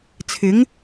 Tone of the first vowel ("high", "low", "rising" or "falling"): rising